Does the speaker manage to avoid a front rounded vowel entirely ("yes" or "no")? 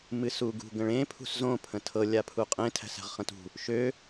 no